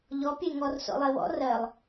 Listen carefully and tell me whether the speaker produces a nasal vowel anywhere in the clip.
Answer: no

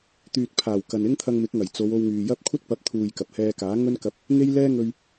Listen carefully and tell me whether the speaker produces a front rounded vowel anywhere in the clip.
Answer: yes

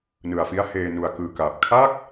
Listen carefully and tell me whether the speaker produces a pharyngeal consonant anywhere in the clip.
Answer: no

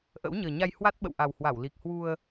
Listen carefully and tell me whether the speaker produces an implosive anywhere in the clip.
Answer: yes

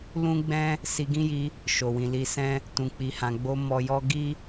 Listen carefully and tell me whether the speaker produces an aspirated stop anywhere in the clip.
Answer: no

